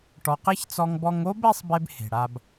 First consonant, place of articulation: retroflex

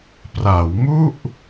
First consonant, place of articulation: labial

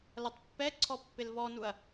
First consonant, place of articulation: alveolar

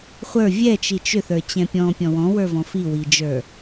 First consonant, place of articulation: uvular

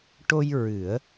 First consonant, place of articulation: retroflex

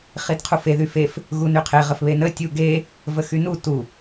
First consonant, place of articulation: uvular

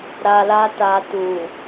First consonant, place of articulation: alveolar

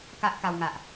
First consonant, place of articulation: velar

